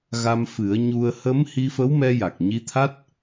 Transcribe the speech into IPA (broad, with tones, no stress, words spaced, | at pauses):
ɣa˧mfɨ˨˩˦ə̯ɲu˧ə̯ hə˧˥m hi˧fə˧˥wmɛ˧ja˨˩k̚ ɲi˧˥t̪ʰa˦˥t̚